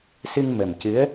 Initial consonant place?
alveolar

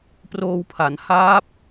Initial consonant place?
labial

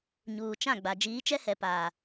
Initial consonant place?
palatal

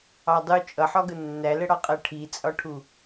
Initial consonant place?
alveolar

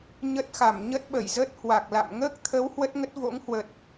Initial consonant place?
palatal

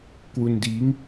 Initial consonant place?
velar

